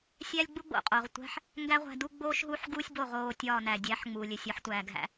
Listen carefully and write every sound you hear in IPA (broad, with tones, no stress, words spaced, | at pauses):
sʲæ˥lʲɡ͡bu˥ɡ͡bo̰˩ qʼo˩ʁtʷæ̤˧ħ | ŋɡæ˥ʁʷæ̤˧du˥ ɡ͡boː˥ʃɦuː˥ħɡuː˥sʲ bo˥˩ʁ oː˥˩tʲɒː˥˩næ˩ dʲæ˩˥ħŋ͡muː˩lʲe˩ sʲɒ˩˥ħtʷæː˩ɡɦæ̰˩˥